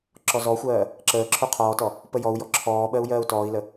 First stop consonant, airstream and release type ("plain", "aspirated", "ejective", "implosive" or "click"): click